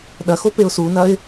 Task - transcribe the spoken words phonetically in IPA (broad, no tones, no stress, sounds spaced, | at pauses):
ɗ ɐ x o p e ʊ̯ s u n ɐ ɪ̯